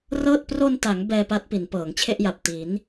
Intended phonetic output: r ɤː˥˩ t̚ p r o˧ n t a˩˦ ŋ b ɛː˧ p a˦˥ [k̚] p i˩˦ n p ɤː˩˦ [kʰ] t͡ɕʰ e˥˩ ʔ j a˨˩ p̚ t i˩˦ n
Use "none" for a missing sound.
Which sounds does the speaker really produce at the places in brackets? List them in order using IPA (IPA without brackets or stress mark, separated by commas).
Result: t̚, ŋ